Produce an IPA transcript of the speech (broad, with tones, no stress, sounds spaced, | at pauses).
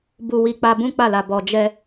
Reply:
b u˧ w i˧ k͡p a˧ b ũ˦ k͡p a˦˨ l a˨ b ɔ˨ d͡ʒ ɛ˧